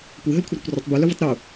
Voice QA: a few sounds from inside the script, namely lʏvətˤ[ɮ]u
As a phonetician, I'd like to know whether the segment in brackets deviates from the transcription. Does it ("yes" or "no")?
yes